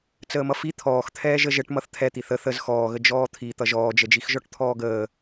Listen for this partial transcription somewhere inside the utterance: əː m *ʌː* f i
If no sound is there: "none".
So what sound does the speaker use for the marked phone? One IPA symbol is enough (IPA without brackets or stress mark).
ʌ